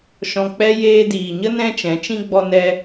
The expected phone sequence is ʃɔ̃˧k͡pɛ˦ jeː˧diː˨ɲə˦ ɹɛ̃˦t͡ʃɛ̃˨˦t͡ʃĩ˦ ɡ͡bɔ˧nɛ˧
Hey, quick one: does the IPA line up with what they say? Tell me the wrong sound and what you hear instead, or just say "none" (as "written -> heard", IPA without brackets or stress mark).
ɹ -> n